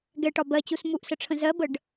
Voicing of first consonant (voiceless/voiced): voiced